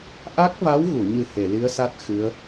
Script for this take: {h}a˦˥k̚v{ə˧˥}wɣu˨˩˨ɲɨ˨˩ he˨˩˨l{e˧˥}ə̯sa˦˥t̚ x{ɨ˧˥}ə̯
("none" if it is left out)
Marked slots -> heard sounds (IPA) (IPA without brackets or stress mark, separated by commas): ʔ, a˧˥, i˧˥, ɨ˧˥